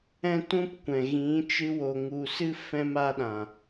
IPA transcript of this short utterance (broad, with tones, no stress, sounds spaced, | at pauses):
ɛ̃˦ t ũ˦ p kʷ ɛ̃˨ ɣ ĩ˨˦ t͡ʃ ɨ˧ w o˨ ŋ u˨ s ɨ˦ f ɛ̃˦ m a˦ ɗ ã˨